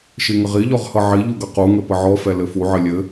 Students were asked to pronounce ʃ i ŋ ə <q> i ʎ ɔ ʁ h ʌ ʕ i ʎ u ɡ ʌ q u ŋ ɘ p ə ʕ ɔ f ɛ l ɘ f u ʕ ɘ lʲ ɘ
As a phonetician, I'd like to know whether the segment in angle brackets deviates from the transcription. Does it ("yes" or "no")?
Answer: yes